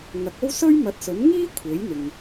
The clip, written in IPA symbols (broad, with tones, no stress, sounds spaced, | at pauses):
ŋ ɐ˨˥ k̚ o˥ w s ɵ˥ ɥ m ɐ˨˥ t̚ s ɵ˨˥ n ŋ iː˥ kʷʰ e˨˥ j n̪ ɪ˨ ŋ